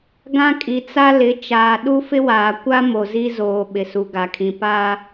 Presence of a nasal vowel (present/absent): present